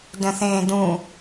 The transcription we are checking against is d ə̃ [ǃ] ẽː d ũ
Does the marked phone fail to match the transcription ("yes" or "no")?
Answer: yes